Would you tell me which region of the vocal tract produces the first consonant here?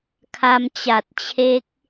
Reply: velum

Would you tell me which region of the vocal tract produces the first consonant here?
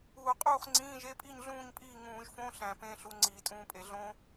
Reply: uvula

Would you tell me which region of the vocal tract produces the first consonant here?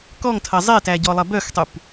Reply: velum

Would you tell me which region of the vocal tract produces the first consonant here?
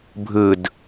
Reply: lips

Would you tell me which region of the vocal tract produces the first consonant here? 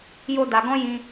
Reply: palate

